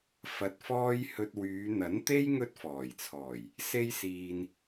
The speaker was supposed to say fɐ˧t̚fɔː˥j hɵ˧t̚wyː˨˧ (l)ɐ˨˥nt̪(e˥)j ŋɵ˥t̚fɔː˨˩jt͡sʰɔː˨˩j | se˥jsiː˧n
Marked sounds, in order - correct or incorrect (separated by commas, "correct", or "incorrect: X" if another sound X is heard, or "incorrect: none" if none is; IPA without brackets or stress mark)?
incorrect: n̪, correct